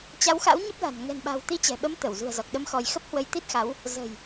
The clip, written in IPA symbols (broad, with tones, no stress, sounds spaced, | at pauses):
t͡ɕ a˨˦ w x a̰˧˥ w ɲ ə˦˥ p̚ l a̤˨˩ n ŋ ɛ̤˨˩ n ɓ a̤˨˩ w t̪ i˧ t͡ɕ ɛ̤˨˩ ɓ ə˨˦ m t̪ ə˧˩ w z ṳ˨˩ ə̯ z ɔ˨˩ k̚ ɗ ə˧ m x ɔ˧ j x ə˦˥ p̚ h w ə˧ j t̪ i˦˥ t̚ x a˨˦ w | z ə̤˨˩ j